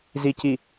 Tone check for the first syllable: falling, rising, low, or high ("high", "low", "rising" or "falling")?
low